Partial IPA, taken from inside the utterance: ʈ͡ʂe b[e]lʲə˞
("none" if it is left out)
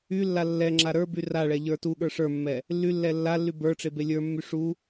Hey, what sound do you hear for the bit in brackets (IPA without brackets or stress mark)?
e